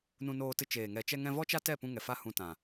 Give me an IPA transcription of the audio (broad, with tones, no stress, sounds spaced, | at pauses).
n ũ˧ n oː˧ t ɨ˧ t͡ʃ eː˨ ŋ ɛ˨ t͡ʃ ɛ˧ ŋ ɛ̃˧ v ɔ˦ t͡ʃ a˦ t ɛ˦˨ p ũ˧ ŋ ɛ˨ f a˦ h ũ˧ t ã˨